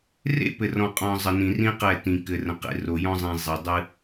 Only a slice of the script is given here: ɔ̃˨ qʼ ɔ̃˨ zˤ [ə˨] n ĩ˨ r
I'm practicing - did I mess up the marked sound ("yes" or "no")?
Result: no